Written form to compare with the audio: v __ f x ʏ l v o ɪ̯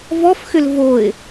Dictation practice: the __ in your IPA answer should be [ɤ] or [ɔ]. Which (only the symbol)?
ɔ